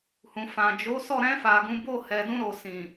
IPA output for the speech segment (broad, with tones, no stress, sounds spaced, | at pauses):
h ũ˨ f ã˨ d͡ʒ o˨˦ s ɔ˦˨ ɾ ɛ̃˧ f a˨ ɡ ũ˨˦ b o˦˨ h ɛ˨ d ũ˧ ɾ o˨ s ĩ˨